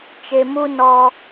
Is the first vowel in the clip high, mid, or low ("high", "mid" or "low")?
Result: mid